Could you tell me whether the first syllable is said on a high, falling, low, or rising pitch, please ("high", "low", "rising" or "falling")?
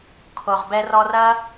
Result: low